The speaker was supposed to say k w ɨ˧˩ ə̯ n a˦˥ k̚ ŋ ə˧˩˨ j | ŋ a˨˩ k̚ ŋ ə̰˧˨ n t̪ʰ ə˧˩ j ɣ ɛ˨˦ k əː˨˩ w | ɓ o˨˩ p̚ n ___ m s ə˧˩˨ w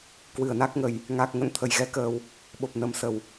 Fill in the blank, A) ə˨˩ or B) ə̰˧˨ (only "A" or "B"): A